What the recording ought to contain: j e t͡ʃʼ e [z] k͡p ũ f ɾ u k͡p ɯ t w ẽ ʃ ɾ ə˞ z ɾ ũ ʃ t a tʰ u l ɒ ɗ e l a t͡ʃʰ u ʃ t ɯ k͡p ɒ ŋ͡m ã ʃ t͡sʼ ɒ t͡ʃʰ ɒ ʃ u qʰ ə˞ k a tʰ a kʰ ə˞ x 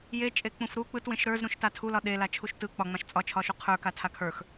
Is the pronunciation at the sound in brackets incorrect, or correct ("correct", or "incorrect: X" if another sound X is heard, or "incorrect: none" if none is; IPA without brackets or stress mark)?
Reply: incorrect: none